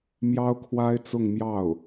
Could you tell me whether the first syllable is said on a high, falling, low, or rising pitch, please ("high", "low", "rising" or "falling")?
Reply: high